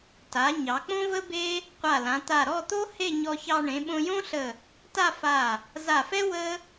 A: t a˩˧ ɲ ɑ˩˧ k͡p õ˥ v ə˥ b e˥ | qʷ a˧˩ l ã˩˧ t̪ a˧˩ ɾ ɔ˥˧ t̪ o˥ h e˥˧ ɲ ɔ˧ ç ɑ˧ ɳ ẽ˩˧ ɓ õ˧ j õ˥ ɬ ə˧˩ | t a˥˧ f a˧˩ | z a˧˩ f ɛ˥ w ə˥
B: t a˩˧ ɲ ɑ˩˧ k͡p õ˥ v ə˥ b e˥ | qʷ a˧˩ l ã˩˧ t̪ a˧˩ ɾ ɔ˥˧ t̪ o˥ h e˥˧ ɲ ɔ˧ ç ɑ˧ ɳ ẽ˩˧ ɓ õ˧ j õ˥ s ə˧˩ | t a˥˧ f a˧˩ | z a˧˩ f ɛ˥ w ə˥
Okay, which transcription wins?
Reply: A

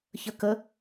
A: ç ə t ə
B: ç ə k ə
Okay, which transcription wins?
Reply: B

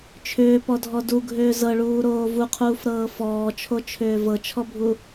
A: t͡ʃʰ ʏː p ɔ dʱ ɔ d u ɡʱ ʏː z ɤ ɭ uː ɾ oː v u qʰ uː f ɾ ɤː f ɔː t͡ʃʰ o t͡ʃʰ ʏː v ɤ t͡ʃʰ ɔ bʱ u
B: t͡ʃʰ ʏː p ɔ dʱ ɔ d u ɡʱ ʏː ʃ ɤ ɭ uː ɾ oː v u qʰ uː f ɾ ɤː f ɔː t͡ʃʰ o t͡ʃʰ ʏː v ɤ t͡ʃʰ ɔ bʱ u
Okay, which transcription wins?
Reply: A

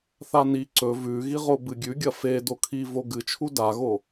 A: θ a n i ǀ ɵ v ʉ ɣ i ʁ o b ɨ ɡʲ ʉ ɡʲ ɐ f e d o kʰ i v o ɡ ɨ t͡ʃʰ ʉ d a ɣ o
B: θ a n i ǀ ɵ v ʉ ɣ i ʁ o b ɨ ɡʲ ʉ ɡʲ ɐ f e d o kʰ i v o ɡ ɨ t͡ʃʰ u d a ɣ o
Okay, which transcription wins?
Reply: B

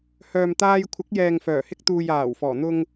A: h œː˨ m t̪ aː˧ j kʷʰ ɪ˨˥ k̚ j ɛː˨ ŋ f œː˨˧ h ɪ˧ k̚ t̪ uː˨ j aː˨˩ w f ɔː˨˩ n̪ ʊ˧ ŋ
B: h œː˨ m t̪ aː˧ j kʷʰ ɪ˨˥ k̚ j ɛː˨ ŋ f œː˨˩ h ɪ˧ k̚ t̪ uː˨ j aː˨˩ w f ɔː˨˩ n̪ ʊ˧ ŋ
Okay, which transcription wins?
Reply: B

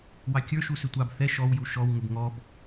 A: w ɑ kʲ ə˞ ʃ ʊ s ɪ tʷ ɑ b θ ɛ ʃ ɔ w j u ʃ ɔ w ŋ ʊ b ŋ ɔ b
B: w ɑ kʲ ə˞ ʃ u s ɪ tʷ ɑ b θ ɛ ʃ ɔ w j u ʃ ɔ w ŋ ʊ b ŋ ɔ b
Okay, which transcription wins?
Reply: B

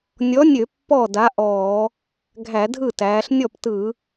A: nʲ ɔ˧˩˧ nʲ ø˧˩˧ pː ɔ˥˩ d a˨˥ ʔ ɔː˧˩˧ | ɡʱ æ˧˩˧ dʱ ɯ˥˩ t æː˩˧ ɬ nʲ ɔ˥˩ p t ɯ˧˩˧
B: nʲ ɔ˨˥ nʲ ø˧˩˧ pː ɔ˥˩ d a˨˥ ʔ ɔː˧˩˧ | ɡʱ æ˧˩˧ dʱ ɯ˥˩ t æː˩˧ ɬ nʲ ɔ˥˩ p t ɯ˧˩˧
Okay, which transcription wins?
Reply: B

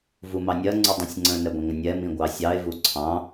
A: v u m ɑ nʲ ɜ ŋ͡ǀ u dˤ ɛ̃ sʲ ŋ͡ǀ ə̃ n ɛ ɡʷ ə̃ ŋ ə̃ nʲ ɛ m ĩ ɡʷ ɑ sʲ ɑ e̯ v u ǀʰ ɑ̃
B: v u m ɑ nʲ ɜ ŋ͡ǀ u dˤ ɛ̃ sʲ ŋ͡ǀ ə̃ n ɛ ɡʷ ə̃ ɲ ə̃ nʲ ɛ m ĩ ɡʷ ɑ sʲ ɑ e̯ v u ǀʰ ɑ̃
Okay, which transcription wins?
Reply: A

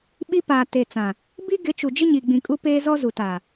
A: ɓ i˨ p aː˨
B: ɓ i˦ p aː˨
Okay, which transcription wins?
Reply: B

